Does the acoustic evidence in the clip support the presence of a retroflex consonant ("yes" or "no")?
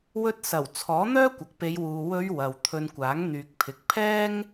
no